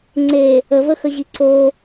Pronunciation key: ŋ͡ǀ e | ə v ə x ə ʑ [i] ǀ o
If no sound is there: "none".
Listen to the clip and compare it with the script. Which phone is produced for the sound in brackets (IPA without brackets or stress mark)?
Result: i